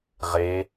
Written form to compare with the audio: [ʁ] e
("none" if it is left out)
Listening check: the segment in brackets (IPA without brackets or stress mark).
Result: ʁ